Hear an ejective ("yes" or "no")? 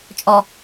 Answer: yes